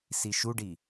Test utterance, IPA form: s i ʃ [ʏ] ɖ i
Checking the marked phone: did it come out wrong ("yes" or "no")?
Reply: yes